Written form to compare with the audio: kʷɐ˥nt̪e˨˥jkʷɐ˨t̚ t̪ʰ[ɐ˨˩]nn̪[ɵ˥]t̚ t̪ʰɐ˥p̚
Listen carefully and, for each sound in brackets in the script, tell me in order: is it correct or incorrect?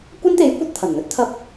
correct, correct

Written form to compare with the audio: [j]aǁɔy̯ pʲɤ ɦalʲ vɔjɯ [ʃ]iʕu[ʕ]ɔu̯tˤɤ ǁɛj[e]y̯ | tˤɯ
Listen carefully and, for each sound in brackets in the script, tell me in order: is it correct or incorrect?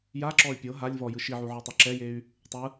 correct, correct, correct, correct

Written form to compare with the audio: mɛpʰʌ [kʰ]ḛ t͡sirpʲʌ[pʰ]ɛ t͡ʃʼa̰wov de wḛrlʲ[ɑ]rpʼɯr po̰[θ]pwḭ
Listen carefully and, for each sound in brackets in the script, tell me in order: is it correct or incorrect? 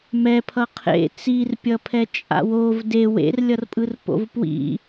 incorrect, correct, incorrect, incorrect

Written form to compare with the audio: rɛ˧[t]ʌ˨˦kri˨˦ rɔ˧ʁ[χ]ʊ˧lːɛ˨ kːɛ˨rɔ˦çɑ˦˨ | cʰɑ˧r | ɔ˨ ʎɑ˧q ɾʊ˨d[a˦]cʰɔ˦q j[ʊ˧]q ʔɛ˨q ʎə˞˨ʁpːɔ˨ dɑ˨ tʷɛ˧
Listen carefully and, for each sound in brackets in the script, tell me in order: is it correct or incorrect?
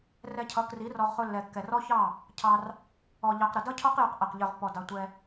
incorrect, correct, incorrect, correct

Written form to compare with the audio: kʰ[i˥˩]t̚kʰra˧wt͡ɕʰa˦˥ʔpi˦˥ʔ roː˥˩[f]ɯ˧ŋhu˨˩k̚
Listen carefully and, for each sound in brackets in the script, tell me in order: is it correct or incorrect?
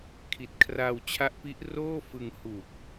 incorrect, correct

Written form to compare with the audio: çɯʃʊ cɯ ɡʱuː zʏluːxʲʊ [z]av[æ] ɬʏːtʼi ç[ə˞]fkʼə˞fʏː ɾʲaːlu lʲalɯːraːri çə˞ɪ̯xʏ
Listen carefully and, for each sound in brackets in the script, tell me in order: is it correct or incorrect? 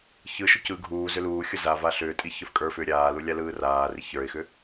correct, incorrect, correct

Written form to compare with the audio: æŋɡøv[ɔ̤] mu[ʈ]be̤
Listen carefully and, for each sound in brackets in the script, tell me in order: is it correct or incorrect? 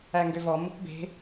incorrect, incorrect

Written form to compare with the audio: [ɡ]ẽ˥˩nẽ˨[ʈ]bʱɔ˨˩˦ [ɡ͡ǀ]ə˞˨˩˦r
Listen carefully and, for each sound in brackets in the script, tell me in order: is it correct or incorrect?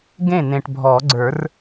correct, correct, correct

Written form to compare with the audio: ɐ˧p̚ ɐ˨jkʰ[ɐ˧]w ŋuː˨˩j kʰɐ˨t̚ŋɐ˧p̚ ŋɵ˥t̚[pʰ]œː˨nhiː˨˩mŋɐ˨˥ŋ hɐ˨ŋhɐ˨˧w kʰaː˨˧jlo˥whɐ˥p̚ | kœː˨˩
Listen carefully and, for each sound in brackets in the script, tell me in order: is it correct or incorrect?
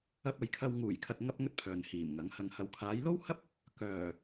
correct, correct

